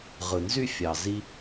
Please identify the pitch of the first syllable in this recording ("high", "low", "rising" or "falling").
low